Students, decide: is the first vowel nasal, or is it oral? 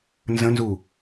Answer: nasal